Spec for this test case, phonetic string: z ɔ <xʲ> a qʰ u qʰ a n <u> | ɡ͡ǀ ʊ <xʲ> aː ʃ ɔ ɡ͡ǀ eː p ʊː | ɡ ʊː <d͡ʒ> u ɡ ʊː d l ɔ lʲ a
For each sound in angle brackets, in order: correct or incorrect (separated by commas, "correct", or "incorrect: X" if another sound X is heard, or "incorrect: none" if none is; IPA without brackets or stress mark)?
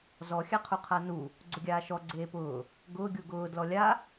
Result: correct, correct, incorrect: ɡʲ, incorrect: ɡʲ